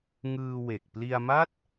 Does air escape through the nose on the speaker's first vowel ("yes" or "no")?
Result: no